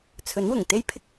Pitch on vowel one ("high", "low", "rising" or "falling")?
rising